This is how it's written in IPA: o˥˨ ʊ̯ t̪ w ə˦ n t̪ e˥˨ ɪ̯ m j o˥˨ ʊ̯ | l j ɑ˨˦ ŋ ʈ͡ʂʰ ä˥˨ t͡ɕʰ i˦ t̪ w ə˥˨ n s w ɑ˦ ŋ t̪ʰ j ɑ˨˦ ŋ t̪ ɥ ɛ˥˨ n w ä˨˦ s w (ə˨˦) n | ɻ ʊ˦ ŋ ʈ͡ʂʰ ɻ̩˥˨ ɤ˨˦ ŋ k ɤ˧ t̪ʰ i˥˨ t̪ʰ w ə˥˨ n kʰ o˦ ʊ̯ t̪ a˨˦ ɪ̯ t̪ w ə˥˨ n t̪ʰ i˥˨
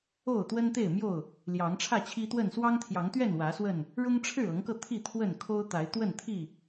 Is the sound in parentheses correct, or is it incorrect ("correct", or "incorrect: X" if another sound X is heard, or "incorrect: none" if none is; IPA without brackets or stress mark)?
incorrect: ə˥˨